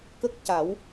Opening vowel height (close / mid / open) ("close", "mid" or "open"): mid